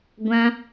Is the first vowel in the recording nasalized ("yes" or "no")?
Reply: yes